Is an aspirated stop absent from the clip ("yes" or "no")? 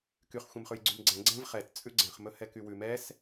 yes